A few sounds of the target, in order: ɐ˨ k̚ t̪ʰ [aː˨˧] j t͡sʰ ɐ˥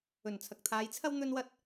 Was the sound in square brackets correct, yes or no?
yes